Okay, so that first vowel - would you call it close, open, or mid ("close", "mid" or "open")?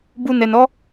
close